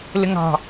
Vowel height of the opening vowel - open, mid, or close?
close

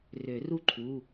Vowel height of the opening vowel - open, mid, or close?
mid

